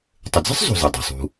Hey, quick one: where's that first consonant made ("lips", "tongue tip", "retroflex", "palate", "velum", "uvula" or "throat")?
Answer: tongue tip